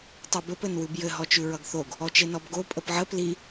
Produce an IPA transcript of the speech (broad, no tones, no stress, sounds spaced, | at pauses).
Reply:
tˤ ʉ b ɘ p ɘ n w ʉ b j ɘ ɦ ɔ t͡ʃ ʉ ɹ ʌ ɡ θ o ɡ | ɔ t͡ʃ e n ɔ b ɡ o pʼ ə p ʕ ə p l i